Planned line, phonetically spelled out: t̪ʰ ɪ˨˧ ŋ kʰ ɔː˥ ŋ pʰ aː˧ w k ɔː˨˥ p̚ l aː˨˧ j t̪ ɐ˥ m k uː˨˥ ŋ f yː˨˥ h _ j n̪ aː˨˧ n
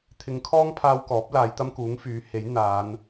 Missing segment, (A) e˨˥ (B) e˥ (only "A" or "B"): A